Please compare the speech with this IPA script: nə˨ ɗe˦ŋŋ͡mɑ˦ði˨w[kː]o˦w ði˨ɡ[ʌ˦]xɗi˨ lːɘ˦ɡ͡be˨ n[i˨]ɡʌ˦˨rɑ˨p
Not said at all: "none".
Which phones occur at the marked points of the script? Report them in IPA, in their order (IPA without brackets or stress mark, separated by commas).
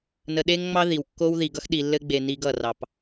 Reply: kː, ʌ˦, i˦